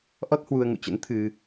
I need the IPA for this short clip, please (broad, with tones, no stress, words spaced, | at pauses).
ʔɔ˦˥t̚hwu˧ə̯ ŋṵ˧˨t͡ɕə̰˧˥n t̪ʰɨ˧